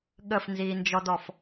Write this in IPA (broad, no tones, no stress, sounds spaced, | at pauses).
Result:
ɠ ə f n z iː n d͡ʒ ɔ d ɔ f